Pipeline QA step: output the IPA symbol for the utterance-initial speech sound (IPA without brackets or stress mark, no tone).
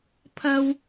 pʰ